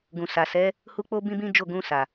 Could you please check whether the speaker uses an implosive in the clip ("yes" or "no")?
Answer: no